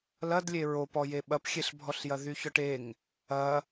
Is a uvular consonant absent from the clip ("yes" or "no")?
yes